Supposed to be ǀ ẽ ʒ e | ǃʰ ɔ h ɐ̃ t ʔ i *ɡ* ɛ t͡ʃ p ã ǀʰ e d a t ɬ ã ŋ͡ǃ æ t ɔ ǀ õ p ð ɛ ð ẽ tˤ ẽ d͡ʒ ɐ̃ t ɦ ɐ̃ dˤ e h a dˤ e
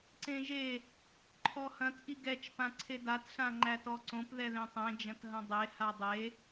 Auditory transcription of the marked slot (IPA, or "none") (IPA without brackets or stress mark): ɡ